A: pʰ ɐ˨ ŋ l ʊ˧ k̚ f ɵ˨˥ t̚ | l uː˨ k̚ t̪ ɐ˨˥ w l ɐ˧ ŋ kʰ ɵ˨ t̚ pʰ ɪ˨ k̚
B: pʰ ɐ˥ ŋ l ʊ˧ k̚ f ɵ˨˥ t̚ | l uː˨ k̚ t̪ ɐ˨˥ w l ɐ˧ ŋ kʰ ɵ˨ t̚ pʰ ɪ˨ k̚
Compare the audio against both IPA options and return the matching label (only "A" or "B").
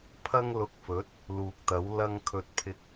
B